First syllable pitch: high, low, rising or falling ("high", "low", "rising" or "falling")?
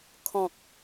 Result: low